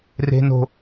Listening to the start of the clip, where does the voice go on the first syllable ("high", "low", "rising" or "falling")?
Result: high